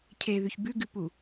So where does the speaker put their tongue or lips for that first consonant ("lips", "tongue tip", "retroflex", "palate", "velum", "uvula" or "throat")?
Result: palate